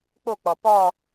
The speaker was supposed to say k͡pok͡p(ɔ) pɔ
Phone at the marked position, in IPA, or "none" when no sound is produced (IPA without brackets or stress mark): ɔ